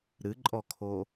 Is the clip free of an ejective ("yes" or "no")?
no